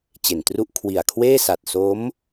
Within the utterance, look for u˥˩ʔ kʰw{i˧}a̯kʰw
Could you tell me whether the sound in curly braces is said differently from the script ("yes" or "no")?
yes